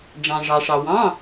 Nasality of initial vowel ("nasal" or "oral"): nasal